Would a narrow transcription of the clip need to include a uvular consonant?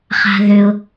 yes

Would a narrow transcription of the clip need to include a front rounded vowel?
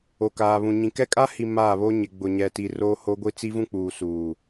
no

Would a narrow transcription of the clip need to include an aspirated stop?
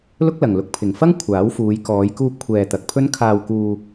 yes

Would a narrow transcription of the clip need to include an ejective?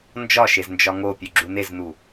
no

